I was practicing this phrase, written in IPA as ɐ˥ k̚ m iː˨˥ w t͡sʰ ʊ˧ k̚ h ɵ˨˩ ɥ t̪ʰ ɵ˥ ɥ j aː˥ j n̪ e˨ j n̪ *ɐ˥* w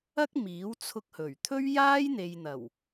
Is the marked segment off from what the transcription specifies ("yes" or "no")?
yes